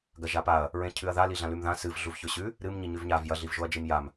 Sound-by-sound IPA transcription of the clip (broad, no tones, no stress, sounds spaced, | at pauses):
ɡ ɐ ʒ a p a ɐ̯ | ɹ ẽ cʰ ʉ ɐ̯ ð a l i ɮ ã l ʉ m ð ã s ɨ v ɮ u v ç ɵ ɕ ʉ | ɾ ɨ m ɲ i ɲ ʉ v ɲ a v j ɐ ɮ i v ʒ o ɐ̯ d͡ʒ i m j a m